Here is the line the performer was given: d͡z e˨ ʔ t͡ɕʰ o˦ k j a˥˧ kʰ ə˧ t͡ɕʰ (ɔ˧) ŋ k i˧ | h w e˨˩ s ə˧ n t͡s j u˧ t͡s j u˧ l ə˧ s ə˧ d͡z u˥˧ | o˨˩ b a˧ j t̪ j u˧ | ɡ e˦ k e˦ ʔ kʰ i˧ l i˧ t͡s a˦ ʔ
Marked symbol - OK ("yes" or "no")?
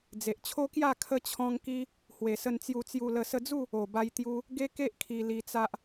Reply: no